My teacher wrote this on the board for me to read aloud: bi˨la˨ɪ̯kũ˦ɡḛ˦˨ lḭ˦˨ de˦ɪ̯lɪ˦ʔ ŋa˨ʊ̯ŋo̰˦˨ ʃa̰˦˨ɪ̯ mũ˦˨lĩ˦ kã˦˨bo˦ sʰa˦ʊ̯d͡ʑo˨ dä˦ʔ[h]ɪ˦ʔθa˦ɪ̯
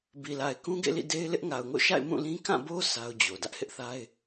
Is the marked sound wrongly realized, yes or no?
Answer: no